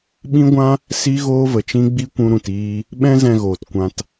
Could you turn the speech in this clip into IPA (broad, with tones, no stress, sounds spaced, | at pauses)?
ɓ ĩ˦ ɡʷ ã˦ | s i˦ ɣ oː˦ v ə˨ t͡ʃ ĩ˦ ɡ͡b i˦ kʷ ũ˧ ɾ ũ˨ t iː˧ | ɓ ɛ̃˦ z ɛ̃˧ ɣ oː˨ t kʷ ã˧ t